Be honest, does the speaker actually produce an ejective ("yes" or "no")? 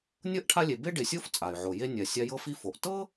yes